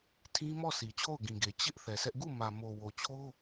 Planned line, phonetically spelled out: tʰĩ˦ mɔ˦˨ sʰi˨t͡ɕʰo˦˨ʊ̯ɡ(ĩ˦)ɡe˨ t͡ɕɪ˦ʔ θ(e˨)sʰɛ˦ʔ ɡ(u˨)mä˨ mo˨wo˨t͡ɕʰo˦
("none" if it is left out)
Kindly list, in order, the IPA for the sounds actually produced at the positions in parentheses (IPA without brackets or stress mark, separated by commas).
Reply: ĩ˨, ɛ˨, u˦˨